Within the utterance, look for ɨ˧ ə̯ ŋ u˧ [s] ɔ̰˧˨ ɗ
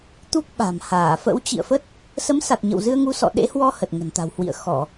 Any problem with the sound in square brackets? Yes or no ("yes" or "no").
no